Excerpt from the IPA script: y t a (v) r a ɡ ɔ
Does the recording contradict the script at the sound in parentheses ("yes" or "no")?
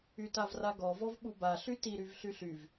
no